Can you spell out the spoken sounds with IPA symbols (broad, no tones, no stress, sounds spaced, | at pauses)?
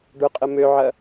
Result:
ɖ ʊ qʼ ə m ø ʕ ɐ